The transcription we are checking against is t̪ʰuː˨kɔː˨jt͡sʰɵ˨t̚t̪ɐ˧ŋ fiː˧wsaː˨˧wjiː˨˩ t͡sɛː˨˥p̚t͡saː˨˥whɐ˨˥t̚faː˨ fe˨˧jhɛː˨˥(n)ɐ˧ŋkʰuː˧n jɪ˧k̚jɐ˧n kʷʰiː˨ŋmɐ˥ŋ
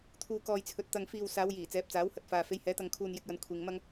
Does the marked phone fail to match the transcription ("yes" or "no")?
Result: yes